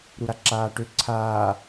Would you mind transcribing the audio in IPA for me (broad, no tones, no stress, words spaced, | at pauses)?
ɾuɾaǁaːʈø ǀʰaː